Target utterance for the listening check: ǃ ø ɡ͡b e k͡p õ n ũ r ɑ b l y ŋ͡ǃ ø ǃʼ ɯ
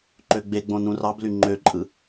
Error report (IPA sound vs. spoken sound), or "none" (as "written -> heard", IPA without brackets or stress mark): k͡p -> ɡ͡b